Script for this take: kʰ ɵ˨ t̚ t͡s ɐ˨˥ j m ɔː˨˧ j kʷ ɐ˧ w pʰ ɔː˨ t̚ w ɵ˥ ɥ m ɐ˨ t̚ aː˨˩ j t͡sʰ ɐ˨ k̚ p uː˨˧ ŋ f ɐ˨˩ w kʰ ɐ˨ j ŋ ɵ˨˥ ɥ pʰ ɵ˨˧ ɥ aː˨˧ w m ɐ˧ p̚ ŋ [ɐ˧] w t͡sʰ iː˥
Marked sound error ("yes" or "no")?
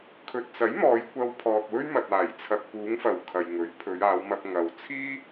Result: yes